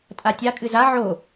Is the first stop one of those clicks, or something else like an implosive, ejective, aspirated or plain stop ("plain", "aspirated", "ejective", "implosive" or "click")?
ejective